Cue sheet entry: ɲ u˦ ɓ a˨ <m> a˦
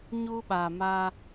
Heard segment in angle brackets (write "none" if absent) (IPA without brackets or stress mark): m